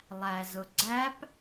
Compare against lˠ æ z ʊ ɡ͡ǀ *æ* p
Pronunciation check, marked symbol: correct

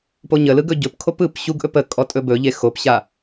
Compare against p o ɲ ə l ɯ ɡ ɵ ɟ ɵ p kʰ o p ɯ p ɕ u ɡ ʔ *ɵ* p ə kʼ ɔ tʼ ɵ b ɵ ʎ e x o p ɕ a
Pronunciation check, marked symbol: correct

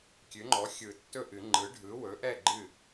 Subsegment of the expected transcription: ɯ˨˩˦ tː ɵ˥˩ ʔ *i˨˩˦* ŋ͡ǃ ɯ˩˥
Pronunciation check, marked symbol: incorrect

